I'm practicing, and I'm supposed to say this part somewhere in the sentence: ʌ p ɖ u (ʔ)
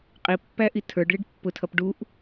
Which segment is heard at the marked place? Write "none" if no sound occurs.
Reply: ʔ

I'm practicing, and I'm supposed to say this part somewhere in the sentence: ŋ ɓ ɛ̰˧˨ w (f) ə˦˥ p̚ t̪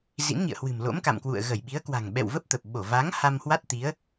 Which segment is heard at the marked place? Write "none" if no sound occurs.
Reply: v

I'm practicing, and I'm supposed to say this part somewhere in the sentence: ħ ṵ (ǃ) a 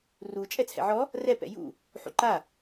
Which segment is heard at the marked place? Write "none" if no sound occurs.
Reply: ǃ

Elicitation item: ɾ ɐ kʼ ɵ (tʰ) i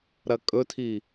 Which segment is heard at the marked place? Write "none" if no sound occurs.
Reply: tʰ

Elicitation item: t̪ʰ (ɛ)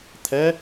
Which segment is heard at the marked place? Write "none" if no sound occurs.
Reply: ɛ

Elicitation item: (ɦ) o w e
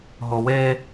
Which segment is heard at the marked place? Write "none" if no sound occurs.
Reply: ɦ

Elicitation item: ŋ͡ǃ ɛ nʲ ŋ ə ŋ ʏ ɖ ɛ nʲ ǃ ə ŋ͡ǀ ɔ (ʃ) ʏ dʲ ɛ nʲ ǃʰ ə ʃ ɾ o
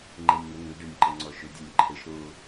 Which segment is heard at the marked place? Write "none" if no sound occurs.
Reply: ʃ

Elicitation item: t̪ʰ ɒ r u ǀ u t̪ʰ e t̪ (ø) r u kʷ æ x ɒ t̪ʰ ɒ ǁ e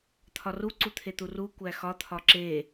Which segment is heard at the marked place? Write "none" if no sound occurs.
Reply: u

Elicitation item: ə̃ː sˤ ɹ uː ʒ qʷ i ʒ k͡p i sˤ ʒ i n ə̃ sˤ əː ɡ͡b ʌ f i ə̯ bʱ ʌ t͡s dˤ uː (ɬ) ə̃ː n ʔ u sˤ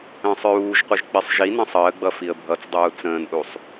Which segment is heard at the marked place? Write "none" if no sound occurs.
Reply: t͡s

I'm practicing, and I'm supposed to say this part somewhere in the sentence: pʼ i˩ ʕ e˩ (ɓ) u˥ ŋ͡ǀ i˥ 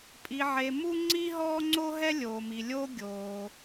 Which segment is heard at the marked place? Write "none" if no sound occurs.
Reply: m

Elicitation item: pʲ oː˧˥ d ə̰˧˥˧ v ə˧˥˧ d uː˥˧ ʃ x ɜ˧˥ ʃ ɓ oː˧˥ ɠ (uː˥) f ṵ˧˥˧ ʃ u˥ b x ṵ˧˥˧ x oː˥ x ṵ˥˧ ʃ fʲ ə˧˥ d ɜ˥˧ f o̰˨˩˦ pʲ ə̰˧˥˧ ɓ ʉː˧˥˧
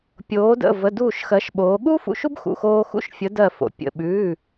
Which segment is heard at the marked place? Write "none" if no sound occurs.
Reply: uː˥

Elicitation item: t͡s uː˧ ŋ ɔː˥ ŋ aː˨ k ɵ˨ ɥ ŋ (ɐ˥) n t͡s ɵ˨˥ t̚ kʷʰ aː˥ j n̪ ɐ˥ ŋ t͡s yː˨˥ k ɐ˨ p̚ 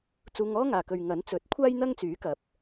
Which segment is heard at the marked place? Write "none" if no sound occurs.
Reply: ɐ˨˥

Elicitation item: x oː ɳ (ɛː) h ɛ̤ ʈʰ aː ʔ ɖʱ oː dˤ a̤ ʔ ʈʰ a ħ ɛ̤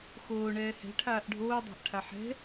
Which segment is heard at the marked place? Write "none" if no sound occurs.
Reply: ɛː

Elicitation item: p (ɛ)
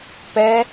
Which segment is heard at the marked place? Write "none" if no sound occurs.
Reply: ɛ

